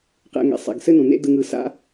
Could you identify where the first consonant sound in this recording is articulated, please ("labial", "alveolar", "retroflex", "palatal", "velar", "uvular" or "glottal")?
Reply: uvular